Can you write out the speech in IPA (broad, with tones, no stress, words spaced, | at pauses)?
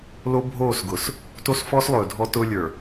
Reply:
lo˦ bʱoː˦˨sɡʊ˨s | to˦sfɔ˦slˠɵː˨ dʱɔ˦tʊː˦ lʲə˞˨